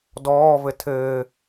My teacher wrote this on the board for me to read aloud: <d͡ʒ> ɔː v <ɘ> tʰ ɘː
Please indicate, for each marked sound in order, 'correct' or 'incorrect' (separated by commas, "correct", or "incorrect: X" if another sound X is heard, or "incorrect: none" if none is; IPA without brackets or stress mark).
incorrect: d, correct